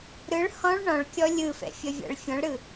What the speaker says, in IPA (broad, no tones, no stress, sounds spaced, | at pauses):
ɾ ɯ ɭ h ɔ̃ ɭ ɳ ɔ̃ ɭ kʲ ɔ lʲ ɯ f ɛ̰ fʲ ʌ vʲ a̰ ɭ fʲ ɔ̃ ɭ ɾ ɯ